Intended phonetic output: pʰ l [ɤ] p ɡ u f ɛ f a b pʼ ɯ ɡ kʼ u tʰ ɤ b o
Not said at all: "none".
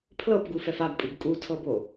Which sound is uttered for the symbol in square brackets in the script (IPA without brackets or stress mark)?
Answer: ɤ